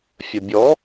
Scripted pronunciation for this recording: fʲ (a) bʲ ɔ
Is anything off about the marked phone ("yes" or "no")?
yes